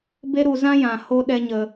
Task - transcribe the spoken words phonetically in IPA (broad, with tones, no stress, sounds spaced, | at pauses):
b e˦ ɾ u˧ z ã˦ j ã˨ h o˦ ɗ ɛ˦ ɲ ə˧